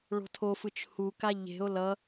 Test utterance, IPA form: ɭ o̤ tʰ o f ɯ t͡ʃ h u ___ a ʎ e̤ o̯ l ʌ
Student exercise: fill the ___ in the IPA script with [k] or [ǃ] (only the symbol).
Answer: k